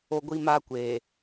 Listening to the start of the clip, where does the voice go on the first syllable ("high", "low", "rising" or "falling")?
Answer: high